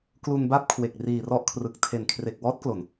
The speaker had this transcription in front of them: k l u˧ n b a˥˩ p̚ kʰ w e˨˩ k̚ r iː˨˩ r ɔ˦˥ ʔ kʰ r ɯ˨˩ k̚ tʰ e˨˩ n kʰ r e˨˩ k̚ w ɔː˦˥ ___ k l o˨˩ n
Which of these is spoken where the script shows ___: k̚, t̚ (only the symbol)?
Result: t̚